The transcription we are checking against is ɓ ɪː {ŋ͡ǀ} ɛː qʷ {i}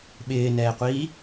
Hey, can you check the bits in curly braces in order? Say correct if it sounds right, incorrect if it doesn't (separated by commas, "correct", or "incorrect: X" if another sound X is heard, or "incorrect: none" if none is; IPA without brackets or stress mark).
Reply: incorrect: n, incorrect: iː